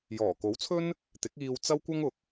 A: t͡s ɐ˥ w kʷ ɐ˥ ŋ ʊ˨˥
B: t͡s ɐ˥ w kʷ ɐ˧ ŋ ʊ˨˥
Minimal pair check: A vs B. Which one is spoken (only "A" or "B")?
A